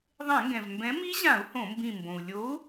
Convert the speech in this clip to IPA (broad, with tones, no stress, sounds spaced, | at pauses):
ðˤ ẽ˧˩˧ ŋ ɡ ɛ̃˩ v m b ɛ̃˨˥ m i˦˥ ʑ ã˧˩˧ u̯ h õ˧˩˧ m b ĩ˧˩ m b õ˩ u̯ lʲ o˨˥ u̯